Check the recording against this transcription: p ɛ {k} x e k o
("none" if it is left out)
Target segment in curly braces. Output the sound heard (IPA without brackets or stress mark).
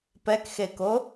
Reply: k